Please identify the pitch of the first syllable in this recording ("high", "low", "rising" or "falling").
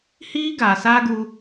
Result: high